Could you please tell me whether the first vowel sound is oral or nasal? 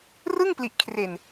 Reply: oral